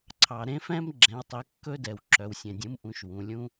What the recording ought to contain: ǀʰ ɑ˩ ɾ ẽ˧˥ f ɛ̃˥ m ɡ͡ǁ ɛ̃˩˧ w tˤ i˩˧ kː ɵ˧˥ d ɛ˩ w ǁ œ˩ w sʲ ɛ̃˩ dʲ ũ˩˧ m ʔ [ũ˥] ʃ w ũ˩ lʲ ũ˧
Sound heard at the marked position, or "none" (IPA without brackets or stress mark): ũ˩˧